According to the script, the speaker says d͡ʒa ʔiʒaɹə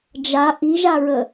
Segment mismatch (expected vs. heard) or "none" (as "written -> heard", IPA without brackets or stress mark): none